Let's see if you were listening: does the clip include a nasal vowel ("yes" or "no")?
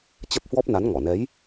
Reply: no